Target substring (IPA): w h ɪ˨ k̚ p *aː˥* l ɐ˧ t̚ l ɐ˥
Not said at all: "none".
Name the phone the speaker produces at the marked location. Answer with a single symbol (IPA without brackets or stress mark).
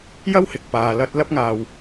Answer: aː˨